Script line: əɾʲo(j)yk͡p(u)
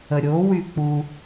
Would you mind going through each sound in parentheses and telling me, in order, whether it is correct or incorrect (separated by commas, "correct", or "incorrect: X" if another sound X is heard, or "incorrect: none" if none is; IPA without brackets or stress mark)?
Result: incorrect: w, correct